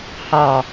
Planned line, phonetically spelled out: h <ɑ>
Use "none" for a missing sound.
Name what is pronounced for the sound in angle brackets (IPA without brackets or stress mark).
ɑ